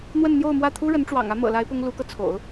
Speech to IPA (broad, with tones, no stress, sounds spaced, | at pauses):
n̪ w ə˥˧ n n̪ j o˥˧ ʊ̯ m w ä˥˩ t̪ʰ u˥ ɻ ə˧˥ n ʈ͡ʂ w ɑ̰˨˩ ŋ ä˧˥ m ɤ̰˨˩ l a˧˥ ɪ̯ p ʊ˥ ŋ l u˧˥ k ɤ˧ t͡sʰ o̰˨˩˦ ʊ̯